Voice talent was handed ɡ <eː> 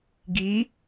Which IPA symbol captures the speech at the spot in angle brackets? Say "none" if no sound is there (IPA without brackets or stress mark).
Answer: iː